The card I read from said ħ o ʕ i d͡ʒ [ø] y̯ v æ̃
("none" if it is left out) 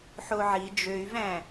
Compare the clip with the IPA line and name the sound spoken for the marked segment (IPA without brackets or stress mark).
ø